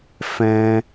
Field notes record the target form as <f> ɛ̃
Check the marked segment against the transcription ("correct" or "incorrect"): correct